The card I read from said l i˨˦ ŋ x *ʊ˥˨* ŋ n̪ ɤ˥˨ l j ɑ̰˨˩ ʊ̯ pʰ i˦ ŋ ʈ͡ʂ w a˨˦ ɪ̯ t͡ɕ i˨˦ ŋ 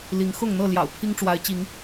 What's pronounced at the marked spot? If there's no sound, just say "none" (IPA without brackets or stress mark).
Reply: ʊ˥˨